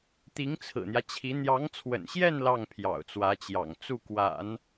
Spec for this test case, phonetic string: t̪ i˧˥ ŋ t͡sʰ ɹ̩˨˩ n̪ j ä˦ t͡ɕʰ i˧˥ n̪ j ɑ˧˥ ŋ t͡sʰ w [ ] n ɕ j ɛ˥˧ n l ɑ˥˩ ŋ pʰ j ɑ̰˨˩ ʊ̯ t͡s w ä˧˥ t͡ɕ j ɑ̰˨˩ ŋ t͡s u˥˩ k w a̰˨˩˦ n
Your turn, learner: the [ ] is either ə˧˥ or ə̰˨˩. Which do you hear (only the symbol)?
ə̰˨˩